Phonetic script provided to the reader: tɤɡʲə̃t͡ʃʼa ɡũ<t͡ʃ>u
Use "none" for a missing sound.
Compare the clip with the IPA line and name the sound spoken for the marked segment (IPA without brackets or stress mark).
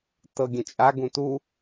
t